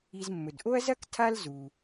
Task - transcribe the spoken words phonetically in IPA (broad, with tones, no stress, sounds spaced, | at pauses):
i˨ z mː ɵ˩ d ʔ o˥ ɐ̯ z ɐ˥ k tʰ a˥ l z u˩